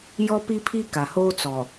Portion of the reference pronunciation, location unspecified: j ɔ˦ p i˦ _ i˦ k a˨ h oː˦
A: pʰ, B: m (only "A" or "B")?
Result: A